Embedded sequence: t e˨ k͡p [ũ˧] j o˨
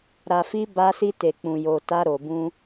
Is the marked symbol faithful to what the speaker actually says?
no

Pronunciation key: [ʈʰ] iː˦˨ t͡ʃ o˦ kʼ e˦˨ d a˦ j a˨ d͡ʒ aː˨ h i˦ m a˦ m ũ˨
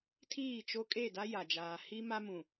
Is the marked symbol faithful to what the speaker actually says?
no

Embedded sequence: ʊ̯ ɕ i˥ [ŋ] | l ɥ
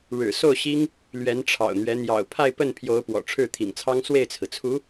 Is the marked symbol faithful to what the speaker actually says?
yes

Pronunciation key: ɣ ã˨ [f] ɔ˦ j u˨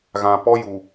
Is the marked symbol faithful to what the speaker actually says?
no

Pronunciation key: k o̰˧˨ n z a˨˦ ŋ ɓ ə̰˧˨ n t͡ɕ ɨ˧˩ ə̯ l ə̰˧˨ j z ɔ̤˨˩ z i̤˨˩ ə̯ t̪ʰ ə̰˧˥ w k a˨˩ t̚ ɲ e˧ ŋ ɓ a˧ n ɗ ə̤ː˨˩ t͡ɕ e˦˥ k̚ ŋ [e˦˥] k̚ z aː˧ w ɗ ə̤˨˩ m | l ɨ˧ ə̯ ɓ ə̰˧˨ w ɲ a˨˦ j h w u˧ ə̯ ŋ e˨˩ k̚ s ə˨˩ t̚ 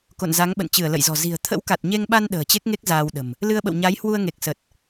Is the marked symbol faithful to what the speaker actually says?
yes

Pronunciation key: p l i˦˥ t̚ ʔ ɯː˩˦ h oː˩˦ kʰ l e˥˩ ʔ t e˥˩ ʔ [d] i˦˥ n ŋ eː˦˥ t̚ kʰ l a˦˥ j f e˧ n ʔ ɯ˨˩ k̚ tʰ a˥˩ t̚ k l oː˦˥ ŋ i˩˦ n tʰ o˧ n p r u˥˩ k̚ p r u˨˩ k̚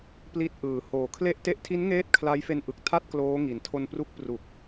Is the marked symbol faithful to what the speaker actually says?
no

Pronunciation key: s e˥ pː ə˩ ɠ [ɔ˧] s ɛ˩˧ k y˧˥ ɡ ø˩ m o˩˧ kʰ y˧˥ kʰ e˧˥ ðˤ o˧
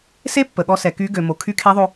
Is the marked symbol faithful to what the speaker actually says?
yes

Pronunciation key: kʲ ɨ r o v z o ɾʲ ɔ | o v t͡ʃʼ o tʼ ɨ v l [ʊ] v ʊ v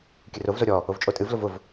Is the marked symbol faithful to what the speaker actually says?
yes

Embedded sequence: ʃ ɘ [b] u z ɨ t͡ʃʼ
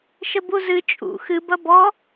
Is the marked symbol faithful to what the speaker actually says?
yes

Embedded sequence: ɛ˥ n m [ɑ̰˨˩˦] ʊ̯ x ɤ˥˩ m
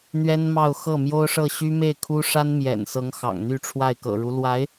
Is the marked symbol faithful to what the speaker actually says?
no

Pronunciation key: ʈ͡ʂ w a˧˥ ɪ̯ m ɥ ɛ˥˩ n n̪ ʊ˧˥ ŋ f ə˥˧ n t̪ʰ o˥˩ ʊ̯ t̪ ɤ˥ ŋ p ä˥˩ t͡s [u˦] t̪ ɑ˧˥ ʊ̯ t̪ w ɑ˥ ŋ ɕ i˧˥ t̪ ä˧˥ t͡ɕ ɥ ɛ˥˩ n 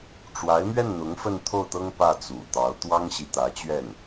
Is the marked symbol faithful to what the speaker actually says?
no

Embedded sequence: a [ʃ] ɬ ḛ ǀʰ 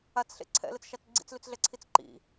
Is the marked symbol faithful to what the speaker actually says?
no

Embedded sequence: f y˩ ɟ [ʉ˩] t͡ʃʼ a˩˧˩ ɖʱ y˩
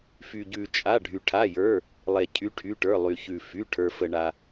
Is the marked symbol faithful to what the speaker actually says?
yes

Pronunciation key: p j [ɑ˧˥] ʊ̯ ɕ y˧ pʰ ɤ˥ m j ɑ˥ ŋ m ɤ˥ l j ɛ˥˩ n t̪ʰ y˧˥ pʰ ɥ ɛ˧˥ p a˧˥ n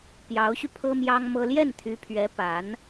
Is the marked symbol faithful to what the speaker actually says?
yes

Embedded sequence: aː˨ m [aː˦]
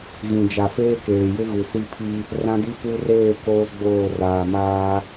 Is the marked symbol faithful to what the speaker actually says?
yes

